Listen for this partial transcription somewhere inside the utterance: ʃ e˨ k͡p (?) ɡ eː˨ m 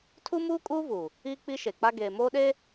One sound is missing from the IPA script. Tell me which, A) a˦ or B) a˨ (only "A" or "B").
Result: A